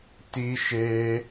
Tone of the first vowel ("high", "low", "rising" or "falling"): high